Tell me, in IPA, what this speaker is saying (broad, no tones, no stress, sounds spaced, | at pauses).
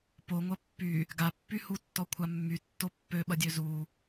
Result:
p o ŋʷ ɐ pː y | ɡ a pː y h u tː ɔ kʷʰ a mː y tː o pː ø ɓ ɐ dʲ ø z u